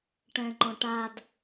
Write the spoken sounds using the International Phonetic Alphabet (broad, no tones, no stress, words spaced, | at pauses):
ʈɛ̃ŋ͡ǃɔ̃ʈad